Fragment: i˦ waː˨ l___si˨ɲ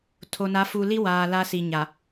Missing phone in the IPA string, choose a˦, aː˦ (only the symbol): a˦